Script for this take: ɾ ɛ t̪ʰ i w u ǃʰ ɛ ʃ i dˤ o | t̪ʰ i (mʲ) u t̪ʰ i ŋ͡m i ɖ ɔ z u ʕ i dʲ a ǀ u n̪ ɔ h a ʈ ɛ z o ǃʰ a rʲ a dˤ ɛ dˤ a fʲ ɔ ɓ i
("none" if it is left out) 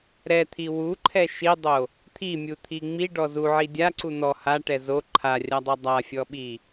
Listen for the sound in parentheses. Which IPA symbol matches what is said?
mʲ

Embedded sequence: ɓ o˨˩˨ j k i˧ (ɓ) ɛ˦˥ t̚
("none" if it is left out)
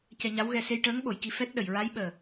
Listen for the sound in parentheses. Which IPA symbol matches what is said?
f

